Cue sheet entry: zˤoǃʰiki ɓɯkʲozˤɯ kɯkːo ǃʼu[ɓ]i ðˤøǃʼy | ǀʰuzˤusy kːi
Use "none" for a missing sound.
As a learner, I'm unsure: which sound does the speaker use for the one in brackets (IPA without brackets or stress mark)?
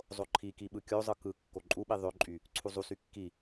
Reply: ɓ